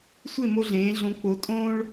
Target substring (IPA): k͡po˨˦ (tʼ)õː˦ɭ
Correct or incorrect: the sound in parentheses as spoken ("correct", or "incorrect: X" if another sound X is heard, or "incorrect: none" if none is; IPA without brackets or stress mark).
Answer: correct